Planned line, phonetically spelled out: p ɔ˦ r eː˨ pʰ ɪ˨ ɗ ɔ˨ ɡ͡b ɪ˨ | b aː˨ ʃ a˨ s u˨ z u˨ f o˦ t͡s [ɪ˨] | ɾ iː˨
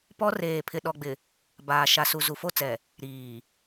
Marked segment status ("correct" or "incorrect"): incorrect